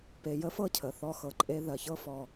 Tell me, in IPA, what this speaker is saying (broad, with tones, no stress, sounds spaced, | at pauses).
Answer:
p e˧ j ə˥ f ɤ˥ cʰ ə˩ θ ɔ˧ x ɤ˩ ǃʼ e˧ ð ɜ˩ ç ɤ˥ f ɔ˩